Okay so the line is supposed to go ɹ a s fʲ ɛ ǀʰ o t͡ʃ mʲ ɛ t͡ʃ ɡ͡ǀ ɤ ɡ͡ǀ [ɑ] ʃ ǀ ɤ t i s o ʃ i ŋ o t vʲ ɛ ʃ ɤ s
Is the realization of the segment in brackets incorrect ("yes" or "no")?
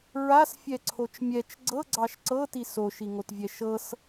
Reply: no